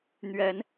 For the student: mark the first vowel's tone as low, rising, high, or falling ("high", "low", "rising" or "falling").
rising